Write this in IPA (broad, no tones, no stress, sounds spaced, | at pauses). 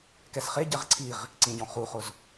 k ɛ s χ e ɟ ɛ ʁ ǀʰ i ʁ | ǀ ĩ ɟ ɔ̃ χ u χ ʊ z